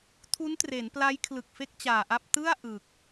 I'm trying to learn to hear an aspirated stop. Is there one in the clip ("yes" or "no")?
yes